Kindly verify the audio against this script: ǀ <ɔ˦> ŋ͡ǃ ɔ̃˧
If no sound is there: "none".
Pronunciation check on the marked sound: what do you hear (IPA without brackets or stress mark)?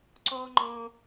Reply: ɔ˦